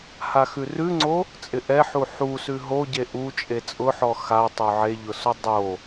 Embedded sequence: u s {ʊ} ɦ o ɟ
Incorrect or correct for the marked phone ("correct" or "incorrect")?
incorrect